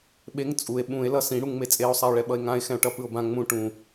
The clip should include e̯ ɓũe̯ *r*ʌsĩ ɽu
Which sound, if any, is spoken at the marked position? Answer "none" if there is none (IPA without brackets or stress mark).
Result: l